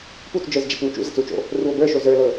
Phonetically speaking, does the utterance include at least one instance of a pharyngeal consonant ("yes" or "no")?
no